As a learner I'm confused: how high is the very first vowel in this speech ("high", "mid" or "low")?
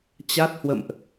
low